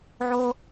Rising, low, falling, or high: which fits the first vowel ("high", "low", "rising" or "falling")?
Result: high